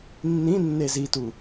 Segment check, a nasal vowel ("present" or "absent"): present